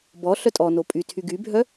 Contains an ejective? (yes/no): yes